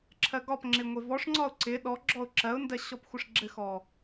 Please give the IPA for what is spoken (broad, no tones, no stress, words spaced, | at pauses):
ǁʰɜɡɒpŋ͡ǁɪ ŋʷevɔʂŋ͡ǀɒʊ̯ ǀɪ ɗɔɡ͡ǁɔʊ̯ ǁɜʊ̯ndɜ ɕɔpxʷɘʂɡ͡ǁɘxɔ